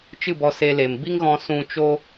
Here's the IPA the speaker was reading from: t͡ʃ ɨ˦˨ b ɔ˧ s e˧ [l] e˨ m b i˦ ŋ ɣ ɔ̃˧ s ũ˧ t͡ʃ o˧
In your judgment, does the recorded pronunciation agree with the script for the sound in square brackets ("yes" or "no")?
yes